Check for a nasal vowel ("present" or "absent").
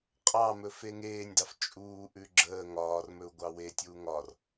absent